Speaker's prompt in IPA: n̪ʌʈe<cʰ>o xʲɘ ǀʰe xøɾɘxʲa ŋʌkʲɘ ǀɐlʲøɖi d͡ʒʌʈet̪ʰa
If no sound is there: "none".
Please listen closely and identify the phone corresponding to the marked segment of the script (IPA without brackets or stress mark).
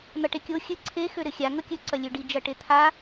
kʲ